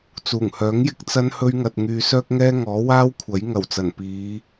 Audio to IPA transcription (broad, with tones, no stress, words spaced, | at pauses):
t͡suː˨˩ŋhœː˨˥ŋjɪ˧k̚ t͡sɐ˥nhɵ˥ɥŋɐ˧t̚ ŋyː˧sœː˥k̚ ŋɛː˥ŋɔː˨˥waː˥wkʷʰɐ˨˥j ŋɐ˨˩wt͡sɐ˨˩n piː˨˧